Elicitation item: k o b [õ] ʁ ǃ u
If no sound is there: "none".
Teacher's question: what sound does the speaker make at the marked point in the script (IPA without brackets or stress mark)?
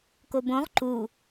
õ